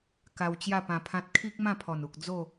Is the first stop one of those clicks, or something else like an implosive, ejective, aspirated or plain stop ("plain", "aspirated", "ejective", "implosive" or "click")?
plain